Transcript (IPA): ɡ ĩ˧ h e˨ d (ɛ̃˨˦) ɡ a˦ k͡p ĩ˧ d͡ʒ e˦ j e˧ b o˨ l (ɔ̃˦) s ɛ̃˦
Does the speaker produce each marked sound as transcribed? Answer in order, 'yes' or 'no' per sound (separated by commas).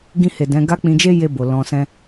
yes, no